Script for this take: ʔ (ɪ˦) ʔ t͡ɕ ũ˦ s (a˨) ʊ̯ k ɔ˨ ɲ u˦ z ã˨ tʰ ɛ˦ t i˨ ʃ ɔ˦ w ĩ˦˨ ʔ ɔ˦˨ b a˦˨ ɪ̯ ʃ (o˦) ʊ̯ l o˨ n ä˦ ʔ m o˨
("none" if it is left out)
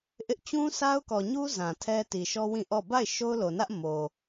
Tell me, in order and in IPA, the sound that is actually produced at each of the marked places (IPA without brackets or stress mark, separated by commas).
ɪ˦, a˦, o˦